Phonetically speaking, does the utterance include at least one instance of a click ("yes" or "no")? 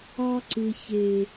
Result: yes